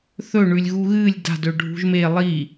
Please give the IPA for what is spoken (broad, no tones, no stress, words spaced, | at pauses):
θɵɳʉlʲ ɣuɣɨːlʲ da̤dɵ ɖʱṳʒme lˠi